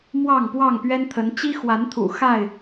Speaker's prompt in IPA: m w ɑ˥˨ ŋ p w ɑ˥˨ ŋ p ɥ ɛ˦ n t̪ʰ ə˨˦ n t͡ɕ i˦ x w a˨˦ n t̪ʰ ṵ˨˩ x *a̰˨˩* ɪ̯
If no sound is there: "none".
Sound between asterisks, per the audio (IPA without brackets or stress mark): a˥˨